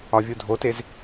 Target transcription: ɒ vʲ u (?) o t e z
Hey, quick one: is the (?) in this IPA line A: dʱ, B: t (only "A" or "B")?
A